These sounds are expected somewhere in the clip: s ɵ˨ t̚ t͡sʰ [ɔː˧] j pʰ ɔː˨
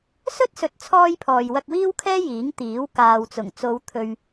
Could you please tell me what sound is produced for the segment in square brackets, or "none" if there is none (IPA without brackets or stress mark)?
ɔː˧